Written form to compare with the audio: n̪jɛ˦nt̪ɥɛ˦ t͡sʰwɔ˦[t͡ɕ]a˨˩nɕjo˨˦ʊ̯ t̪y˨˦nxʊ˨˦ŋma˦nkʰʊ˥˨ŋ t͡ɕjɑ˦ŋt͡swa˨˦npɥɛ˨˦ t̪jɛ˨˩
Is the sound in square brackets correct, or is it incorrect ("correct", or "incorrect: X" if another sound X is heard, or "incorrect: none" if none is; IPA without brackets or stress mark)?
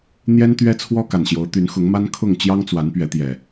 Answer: incorrect: k